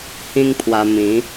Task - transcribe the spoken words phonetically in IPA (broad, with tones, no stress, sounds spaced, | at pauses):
h ĩ˦ ŋ pʰ w a˧ m ĩ˨˦